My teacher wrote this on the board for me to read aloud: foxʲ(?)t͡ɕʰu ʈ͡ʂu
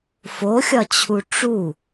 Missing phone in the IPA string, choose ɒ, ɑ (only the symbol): ɒ